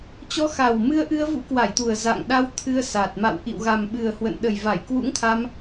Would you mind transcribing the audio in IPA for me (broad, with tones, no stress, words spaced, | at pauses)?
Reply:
t͡ɕɔ˨˦xa˨˩wmɨ˧ə̯ʔɨ˧ə̯ vṵ˧˥kwa˧˩jt̪u˨˩ə̯ za̰˧˨ŋɗa˧w t̪ʰɨ˧ə̯sa˨˩t̚ ma̰˧˨wʔḭ˧˨w ɣa˨˩mɓɨ˨˩ə̯hwə̰˧˨n ɗə˨˩jva˧˩j kwṵ˧˥ŋt̪ʰa˧m